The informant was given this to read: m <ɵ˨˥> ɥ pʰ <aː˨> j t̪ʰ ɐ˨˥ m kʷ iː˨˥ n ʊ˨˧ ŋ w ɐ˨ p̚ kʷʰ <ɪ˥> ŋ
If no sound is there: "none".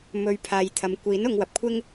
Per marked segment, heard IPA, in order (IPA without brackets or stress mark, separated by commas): ɵ˨, aː˨, ɪ˥